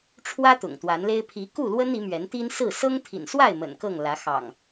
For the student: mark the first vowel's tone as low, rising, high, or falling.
high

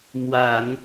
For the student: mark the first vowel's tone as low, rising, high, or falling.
low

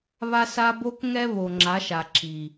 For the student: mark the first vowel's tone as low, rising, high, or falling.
high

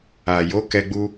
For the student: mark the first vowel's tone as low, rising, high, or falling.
low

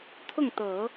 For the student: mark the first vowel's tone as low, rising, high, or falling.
falling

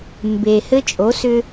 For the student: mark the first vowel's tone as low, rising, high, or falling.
low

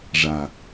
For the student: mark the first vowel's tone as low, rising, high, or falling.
low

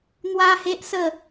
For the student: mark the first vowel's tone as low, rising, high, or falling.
high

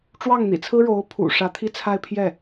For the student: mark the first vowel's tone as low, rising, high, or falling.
falling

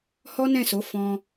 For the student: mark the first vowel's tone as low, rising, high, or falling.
high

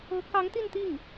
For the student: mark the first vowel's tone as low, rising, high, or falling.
rising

